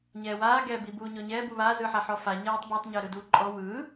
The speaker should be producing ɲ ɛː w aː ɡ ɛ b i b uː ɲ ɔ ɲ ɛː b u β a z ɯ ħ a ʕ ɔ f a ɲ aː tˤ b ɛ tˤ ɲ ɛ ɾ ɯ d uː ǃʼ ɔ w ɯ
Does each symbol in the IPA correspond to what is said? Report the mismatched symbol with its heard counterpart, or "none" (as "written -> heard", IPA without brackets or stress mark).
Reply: ʕ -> ħ